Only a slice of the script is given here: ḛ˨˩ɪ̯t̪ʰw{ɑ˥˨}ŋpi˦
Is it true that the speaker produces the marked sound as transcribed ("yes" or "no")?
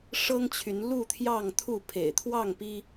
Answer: yes